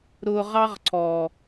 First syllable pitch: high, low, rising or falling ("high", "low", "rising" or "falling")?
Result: low